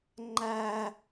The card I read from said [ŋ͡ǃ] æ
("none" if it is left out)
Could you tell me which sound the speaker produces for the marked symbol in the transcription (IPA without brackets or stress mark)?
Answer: ŋ͡ǃ